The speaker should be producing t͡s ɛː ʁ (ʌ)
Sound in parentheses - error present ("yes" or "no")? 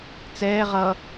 no